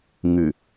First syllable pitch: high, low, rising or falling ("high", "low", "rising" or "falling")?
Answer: low